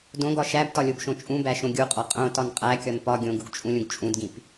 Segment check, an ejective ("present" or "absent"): present